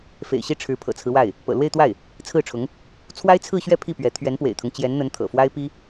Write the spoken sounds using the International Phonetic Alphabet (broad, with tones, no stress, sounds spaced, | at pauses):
f ḛ˨˩ ɪ̯ ɕ i˥˩ ʈ͡ʂʰ ɻ̩˧˥ pʰ ɤ̰˨˩ t͡sʰ ɹ̩˦ w a˥˩ ɪ̯ | p ɤ̰˨˩ l w e˥˧ ɪ̯ t̪ w a˥˩ ɪ̯ | t͡sʰ ɹ̩˥˩ ʈ͡ʂʰ ʊ˧˥ ŋ | t͡sʰ w a˥ ɪ̯ t͡sʰ ɹ̩˥˧ ɕ ɥ ɛ˥˧ pʰ i˥˩ p ɥ ɛ˧˥ t̪ʰ ɥ ɛ˧˥ n p w ḛ˨˩ ɪ̯ t̪ʰ ʊ˦ ŋ t͡ɕ j ɛ˧˥ n n̪ ə˧˥ n t̪ʰ ɤ̰˨˩ f w a˥ ɪ̯ p i˥